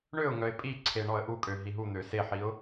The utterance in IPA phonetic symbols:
ɳ ø ʊ̯ ŋ œ ɪ̯ pʼ i ǀʰ e ɳ ɔ ə̯ ʔ u kʼ ø ɦ i ɦ u n̪ ø s e ħ i ʊ̯

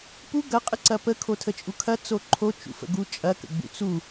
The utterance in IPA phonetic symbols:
p u ɡ ɐ qʼ ə ǀ ɐ p ə kʰ o tʰ ə t͡ʃʼ u kʰ ɐ t͡s o ǃʰ o t͡ʃ ṵ f ə̰ ɡ u t͡ʃʼ ɐ k ə̰ ɡ͡b ṵ t͡s u

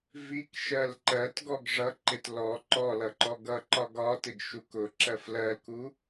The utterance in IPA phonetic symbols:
v i k ʃ ɜ l ǃ ɜ t ɡ ɔ ɡ ʐ ʌ ǃ ɪ t l ɔ ǃ ɔ l ʌ ǃ ɔ ɡ ʌ ǃ ɒ ɡ ɒ t ɪ ɡ ʃ u k ʊ ǁ ɜ f l ɜ l k u

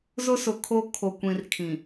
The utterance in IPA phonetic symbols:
z ʊ˦ s ʊ˨ kʰ o˦ kʰ o˨ kʷ ĩ˨ r kʰ ĩ˨

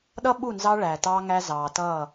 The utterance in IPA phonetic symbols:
ɗ ʌ˦ ɓ u˦˨ n z ɑ˦ ɭ æ˨ t ɑː˦ ŋ æ˦ z ɑː˨ t ʌː˦˨

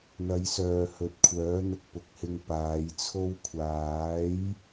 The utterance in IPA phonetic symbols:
n̪ ɐ˨˧ j s œː˨ h ɵ˨˥ t̚ kʷʰ œː˨˥ n̪ ʊ˧ k̚ p ʊ˨ k̚ h ɪ˧ ŋ p aː˨˧ j t͡sʰ o˧ w kʷʰ aː˨˥ j

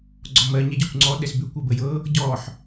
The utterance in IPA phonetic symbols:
ɡ͡ǀ ɔ m ɜ ɲ ɛ ɟ ɔ kʷ ŋ͡ǀ ɔ ɗ ɛ s b ʏ kʷ ɜ b ə j ɤ | ɟ ɔ ħ

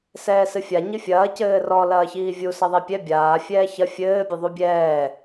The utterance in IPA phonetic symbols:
s ɛː s ɨ fʲ a ɲ ɨ fʲ ɐː c ɘː r ɔ l ɐː ç iː vʲ u s ɐ ðˤ ɛ pʲ ɛ bʲ aː fʲ ɛː ç ɐ fʲ ɘː bʲ ɘ ðˤ u bʲ ɛː

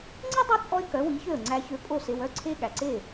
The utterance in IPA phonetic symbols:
ŋ͡ǀ i˥ dˤ ʉ˥ t͡sʼ ɔ˥ ɪ̯ k œ˩˥ w i˩˥ ç ø˥˩ ə̯ ŋ͡ǀ æ˧ ç ø˧ pʼ o˥˩ s e˧ w œ˥ ǀʰ e˥ ɠ æ˩ ǀ e˥˩

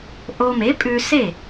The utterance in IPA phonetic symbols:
ʔ o˧ m e˩˥ pʼ ʉ˧ s e˥˩

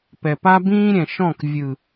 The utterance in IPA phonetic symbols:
p ɛ˨ p a˦ b ĩː˦ ɾʲ ɛ̃˨ ʃ ɔ̃˦˨ k vʲ ɯ˨

